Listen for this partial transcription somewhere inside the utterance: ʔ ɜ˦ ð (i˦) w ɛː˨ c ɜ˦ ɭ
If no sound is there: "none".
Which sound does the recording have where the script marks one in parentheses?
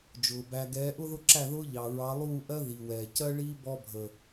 i˨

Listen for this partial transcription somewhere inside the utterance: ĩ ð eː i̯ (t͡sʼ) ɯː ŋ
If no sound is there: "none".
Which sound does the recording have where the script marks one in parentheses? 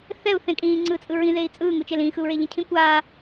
t͡sʼ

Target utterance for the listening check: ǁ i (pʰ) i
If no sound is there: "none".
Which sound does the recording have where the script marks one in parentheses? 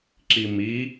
m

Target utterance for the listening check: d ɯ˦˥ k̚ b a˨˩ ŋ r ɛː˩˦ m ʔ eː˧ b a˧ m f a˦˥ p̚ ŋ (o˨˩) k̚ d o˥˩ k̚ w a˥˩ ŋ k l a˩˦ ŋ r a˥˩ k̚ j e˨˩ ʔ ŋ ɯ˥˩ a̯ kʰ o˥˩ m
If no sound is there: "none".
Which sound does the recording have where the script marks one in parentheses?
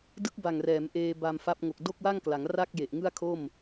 o˨˩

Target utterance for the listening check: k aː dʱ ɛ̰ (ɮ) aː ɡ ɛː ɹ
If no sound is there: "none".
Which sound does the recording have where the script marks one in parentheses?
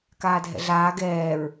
ɮ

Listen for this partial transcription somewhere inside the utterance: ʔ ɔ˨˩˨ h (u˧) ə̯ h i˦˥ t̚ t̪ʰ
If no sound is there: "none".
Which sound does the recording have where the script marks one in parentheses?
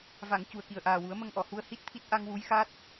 u˧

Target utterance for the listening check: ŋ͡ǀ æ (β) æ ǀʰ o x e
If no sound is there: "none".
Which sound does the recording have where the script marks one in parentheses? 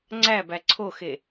b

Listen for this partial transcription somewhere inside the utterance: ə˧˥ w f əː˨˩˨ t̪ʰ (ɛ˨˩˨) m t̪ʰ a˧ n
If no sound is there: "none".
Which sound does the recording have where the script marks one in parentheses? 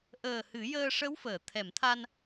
ɛ˨˩˨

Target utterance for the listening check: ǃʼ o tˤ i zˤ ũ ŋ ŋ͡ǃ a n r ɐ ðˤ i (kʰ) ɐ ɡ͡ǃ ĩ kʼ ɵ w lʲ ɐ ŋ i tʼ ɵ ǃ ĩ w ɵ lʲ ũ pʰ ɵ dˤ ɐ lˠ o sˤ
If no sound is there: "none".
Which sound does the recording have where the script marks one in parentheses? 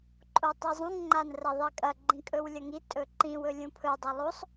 kʼ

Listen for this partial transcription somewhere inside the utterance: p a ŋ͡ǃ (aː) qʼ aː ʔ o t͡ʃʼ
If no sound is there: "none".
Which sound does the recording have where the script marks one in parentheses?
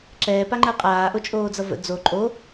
əː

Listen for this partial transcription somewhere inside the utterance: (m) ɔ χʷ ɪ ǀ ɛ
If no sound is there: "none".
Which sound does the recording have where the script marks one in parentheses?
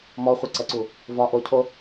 m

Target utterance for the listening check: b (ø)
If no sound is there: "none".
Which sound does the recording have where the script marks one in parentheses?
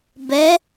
ɛ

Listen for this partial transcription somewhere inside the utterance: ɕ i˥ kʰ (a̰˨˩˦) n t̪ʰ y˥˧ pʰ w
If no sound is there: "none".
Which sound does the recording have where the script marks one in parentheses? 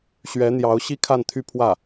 a˥˧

